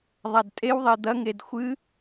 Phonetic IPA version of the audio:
ðˤ a d tʼ e w ðˤ e d̪ ɐ ŋ e d xʷ ɨ

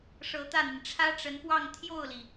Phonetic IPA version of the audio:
ʂ ɤ˧˥ t̪ ä˥˩ n̪ i˩ n ʈ͡ʂʰ ä˥ ʈ͡ʂ ə˧˥ n p w ɑ˥˧ ŋ t̪ʰ j o˥˩ ʊ̯ l i˩

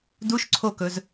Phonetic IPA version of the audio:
d u ʃ ǀʰ o k ɵ z

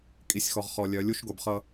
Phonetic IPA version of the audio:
kʼ i˨ sʲ x ɔ˨ ʁ χ ɔ˨ lʲ œ˨˦ lʲ u˦ ʃ ɡ o˨ b χ ʌ˦

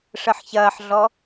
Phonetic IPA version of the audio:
ʂ ə ħ ç ɐː ħ ɮ ɔ

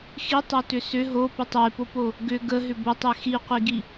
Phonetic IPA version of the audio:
x i tˤ ɔ t ʏ s ʏ ɦ o p ʏ tˤ e p o p o | ɡ ʏ ɡ ə ɦ ʏ b o tˤ e x i qʷ i ɡ i

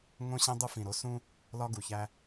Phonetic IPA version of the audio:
ŋ õ˦ ɕ ẽ˦ dˤ u˦ f ĩ˨ ɾ o˦ s ũ˦ | l ɒ˦ ɡ u˨ ç æ˦

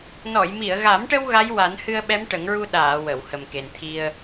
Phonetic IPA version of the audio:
n ɔ˨˩˨ j m i˨˩˨ ə̯ ɣ a˨˩˦ m ʈ ə˧ w ɣ a˧˥ j w a˨˩˦ n h ɨ˧ ə̯ ɓ ɛ˧˥ m ʈ ə˨˩˦ ŋ ɹ u˧ ɗ aː˨˩˨ w ə˨˩˨ w h ə˨˩ m k e˨˩ n t̪ʰ i˧ ə̯

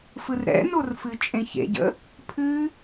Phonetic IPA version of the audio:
f ɯ r ɾ ɛ̰ n o r f ɨ t͡ʃʼ ẽ ç ḛ ɟ ə̰ | pʰ ɨ

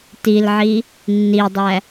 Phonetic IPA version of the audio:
t i l ʕ i | nː i dˤ æ

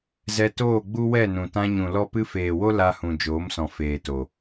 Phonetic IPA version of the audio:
z ɛ˧ t oː˦˨ ɡ͡b u˦ w ɛ˦˨ n ũ˨ t ã˧ ɲ ũ˨ l ɔ˧ p ɨ˧ f eː˨ w o˦ l a˧ h ũ˨ d͡ʒ oː˨˦ m s ɔ̃˨ f eː˨ t o˨

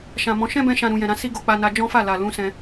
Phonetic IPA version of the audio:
ʃ ã˨ m ɔ̃˨˦ ʃ ɛ̃˦ b ɛ̃˧ ʃ ã˨ ɾ ũ˨ j ɛ̃˨ ɾ ã˧ s i˦ ɡ o˧ k͡p a˧ n a˧ d͡ʒ ɔ̃˦ f a˦˨ l a˨ l ũ˨˦ s ɛ̃˧

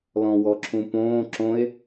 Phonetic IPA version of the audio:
l ɔ̃ w ɔ ǁʰ ũ p õː ǁ õ e̯

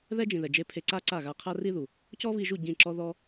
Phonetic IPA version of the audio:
ð ɛ˦ d͡ʒ ĩ˨ ð ɛ˨ d͡ʒ e˧ pʰ e˧ ǀ a˦ ǀ a˦˨ ɣ a˧ qʰ a˦ r i˦ ð u˨ | c ɔ˦ β i˧ ʒ u˦˨ ɟ ĩ˦˨ ǁ ɔ˦ ð ɔ˦

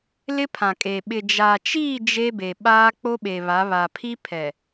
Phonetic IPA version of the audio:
l ɪ˦ pʰ ã˨ kʼ e˨ ɓ ɪ˨ d͡ʒ aː˨ t͡ʃ iː˦˨ d͡ʒ e˦ b e˨ ɓ aː˦ k͡p o˦ ɓ e˨ β a˨˦ β a˨ pʰ i˦ pʰ ɛ˨

